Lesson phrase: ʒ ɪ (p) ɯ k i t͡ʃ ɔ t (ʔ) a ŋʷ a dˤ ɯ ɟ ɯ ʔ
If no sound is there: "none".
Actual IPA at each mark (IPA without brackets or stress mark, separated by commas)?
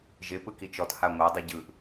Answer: p, h